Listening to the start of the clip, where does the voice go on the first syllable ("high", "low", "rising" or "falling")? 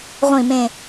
falling